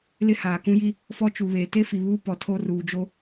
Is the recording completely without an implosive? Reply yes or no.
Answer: yes